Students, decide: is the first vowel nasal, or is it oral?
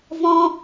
nasal